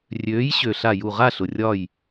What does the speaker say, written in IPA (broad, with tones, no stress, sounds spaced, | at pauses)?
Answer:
rʲ øː˨˥ j ɕ ø˩ ɬ a˧˩ j u˧˩ ʁ a˥˨ ɬ ʊ˩ rʲ ɒ˧˩ j